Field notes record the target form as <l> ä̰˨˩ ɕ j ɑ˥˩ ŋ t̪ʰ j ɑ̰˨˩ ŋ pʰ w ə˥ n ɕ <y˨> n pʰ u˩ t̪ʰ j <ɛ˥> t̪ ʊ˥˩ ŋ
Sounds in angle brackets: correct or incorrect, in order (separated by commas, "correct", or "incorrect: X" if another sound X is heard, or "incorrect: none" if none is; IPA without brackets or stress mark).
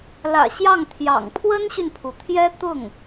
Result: correct, correct, correct